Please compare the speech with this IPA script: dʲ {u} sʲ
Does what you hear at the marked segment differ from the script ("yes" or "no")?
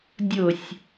yes